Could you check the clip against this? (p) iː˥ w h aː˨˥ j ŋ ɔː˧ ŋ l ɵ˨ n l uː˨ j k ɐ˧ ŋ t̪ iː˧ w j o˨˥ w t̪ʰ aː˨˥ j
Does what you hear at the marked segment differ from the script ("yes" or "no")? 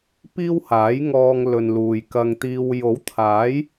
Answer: no